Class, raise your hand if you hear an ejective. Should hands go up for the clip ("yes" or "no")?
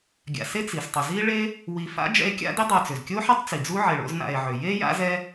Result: no